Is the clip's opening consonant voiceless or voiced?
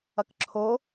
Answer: voiceless